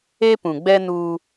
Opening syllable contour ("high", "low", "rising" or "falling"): high